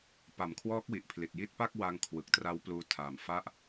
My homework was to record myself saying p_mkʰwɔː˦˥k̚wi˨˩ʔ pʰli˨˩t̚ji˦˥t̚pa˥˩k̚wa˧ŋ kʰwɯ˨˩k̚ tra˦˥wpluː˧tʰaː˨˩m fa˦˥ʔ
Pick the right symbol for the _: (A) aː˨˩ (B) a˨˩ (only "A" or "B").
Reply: B